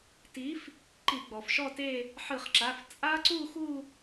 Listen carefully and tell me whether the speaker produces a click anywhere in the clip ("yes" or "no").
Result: yes